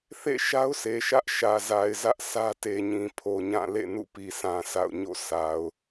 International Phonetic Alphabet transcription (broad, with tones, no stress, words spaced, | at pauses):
θḛ˦˨ʃa˦ʊ̯sʰe˨ʃä˦ʔ ʃä˨ za˨ɪ̯zä˦ʔ sʰä˦te˨ɲĩ˨ pʰo˨ɲã˦˨ lḛ˦˨nṵ˦˨pi˨sʰã˨ sa̰˦˨ʊ̯ɲo̰˦˨ sa˨ʊ̯